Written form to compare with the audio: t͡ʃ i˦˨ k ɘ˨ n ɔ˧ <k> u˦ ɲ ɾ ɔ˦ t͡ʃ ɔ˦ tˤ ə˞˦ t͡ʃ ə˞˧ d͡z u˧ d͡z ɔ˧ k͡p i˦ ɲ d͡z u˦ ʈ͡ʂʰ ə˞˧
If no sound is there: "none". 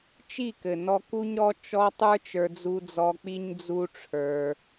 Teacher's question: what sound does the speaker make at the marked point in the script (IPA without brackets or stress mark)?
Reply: k